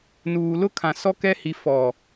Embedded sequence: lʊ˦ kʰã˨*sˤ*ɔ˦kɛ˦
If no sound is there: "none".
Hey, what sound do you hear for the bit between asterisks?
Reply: s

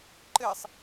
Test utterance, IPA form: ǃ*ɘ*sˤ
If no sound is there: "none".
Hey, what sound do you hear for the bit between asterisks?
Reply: ɘ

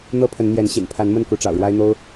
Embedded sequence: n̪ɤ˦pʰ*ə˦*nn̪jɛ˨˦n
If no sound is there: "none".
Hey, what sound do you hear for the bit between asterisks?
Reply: ə˨˦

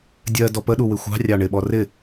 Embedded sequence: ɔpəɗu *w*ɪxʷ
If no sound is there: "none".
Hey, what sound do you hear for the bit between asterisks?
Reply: w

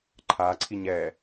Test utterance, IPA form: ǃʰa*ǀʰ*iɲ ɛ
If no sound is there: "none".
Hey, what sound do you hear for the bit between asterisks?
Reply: ǀʰ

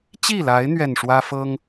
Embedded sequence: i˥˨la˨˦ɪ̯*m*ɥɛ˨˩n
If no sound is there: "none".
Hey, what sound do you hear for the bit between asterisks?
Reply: n̪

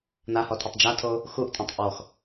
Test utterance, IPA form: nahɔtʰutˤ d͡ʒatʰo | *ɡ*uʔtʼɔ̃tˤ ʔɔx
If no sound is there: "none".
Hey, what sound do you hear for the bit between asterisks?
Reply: x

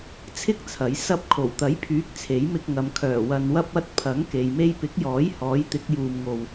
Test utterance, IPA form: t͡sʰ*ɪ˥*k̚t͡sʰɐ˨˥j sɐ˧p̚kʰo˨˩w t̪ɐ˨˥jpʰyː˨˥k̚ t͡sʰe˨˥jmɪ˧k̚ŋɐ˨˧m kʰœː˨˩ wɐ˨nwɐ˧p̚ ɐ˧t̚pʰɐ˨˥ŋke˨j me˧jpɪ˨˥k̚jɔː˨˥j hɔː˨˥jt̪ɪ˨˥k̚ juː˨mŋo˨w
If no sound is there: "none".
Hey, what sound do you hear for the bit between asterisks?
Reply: ɪ˥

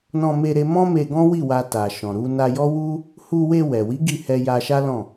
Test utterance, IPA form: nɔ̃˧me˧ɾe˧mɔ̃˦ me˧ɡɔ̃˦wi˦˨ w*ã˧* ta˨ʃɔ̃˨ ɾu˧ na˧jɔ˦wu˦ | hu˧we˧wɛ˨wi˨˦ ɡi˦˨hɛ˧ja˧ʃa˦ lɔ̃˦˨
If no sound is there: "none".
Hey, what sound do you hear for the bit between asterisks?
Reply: a˧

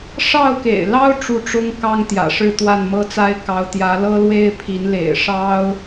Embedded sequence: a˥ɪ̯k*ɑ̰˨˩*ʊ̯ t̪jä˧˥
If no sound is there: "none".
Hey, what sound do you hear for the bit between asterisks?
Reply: ɑ˧˥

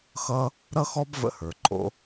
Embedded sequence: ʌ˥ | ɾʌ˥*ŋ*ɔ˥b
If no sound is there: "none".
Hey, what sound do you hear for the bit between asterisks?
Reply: x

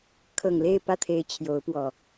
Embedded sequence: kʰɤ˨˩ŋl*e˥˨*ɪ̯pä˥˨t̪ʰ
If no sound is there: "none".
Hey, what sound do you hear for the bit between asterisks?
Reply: e˥˨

